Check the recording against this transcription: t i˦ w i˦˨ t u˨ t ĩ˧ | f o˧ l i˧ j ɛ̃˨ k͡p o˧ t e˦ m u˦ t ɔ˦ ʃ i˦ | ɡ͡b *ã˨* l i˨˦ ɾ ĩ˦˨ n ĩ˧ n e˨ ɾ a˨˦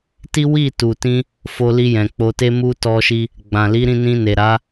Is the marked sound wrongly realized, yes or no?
no